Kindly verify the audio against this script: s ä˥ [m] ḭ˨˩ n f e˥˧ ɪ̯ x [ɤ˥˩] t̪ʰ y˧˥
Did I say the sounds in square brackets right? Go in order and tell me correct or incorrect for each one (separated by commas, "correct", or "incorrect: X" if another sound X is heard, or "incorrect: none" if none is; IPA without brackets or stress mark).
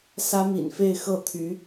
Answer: correct, correct